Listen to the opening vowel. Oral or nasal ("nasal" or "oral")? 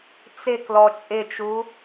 oral